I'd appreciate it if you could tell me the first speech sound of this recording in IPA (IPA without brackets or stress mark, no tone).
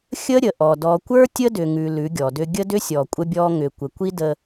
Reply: xʲ